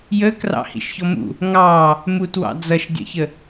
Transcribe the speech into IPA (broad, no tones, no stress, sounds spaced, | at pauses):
j ə k r ɑ̰ h ḭ ʃ ç ɔ m ṵ | ŋ ɑ | m u t w ɑ̰ d͡z ʌ ʃ dʲ ə̰ ç ə